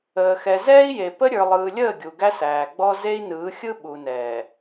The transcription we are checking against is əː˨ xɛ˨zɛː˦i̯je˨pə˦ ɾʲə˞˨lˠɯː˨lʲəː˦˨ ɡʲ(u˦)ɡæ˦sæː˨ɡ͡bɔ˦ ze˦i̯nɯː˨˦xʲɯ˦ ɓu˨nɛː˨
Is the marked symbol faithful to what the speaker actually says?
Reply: no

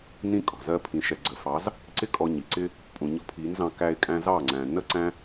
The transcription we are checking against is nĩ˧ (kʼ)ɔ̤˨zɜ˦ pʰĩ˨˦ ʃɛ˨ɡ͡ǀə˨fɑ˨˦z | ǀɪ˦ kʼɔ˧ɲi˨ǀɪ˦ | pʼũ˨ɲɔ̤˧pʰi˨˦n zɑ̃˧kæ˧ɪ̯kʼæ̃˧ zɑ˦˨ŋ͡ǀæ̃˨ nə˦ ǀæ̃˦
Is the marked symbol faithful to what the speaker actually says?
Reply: yes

